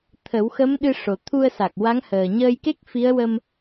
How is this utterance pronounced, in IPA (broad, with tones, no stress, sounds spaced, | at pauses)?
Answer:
t̪ʰ ə˨˩˦ w x ə˧˥ m ɗ ɨ˧ ʂ o˨˩ t̪ʰ u˧ ə̯ s a˨˩ k̚ w a˧˥ ŋ h əː˨˩ ɲ əː˧ j k e˦˥ k̚ f i˧˥ ə̯ w ə˧ m